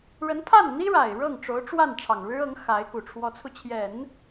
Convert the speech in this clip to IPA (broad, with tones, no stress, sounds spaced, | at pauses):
ɻ ə˧˥ n pʰ a˥˩ n n̪ i˥ ɻ a˨˩ ɪ̯ ɻ ɤ˥˩ ŋ ʈ͡ʂ o˧˥ ʊ̯ ʈ͡ʂ w a˥˩ n ʈ͡ʂʰ ɑ˨˩ ŋ ɻ ɻ̩˥ ɤ˧˥ ŋ x a˧˥ ɪ̯ k u˨˩ ʈ͡ʂʰ w ɔ˧˥ t͡sʰ u˧ t͡ɕʰ j ɛ˨˩˦ n